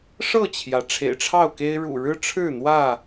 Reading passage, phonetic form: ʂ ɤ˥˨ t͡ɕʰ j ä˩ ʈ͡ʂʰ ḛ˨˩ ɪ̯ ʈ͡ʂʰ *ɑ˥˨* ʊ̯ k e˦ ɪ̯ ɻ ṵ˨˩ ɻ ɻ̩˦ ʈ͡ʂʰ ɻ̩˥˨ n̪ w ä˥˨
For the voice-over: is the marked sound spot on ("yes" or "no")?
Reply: yes